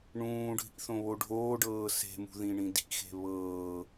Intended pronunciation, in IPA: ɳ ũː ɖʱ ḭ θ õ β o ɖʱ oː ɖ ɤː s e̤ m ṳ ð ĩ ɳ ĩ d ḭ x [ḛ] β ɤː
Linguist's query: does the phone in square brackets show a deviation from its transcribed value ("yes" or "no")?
yes